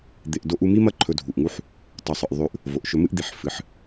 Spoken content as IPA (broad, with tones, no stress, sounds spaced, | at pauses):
d̪ e˧ ʔ d o˦ ʔ u˦ m i˦ m ɐ˦ ǃʰ ɵ˧ dʱ u˨ ʔ ŋ u˦ ħ | tˤ u˨ sˤ ɨ˨ ʔ ðˤ ʉ˧ ʔ | v o˨ ʔ ʃ ɵ˧ m ɨ˦ ʔ d̪ i˨ ħ f ɨ˨˦ ħ